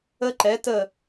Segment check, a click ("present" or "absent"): present